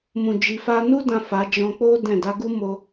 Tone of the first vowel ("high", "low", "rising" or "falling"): low